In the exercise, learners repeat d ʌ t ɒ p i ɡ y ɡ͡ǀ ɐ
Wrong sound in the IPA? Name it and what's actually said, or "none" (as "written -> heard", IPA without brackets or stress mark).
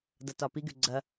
none